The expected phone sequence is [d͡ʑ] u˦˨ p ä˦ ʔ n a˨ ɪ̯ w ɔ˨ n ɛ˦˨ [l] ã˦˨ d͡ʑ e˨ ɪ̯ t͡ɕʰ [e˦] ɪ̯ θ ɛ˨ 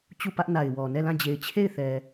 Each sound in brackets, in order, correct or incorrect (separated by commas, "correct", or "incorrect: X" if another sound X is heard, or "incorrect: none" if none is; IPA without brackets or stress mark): incorrect: t͡ɕ, correct, incorrect: e˦˨